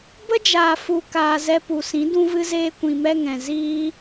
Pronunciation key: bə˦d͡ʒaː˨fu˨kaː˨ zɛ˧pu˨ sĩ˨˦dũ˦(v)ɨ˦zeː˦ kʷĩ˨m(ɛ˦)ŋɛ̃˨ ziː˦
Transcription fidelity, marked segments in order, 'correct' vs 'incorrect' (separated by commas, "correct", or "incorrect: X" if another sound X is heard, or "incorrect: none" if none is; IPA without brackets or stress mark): correct, correct